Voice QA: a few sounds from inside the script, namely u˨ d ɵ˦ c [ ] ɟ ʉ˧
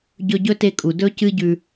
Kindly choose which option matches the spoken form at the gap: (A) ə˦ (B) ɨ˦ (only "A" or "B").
B